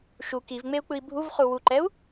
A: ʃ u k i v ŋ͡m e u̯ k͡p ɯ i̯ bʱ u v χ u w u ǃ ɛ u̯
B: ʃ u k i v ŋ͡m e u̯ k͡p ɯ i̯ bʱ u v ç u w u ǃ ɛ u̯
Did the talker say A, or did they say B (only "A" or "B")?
A